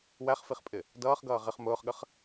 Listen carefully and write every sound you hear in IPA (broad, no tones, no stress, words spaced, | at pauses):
wæχfiχpʼɪ | dʌːχɡʌː ʁɪχ mʊːχɠəχ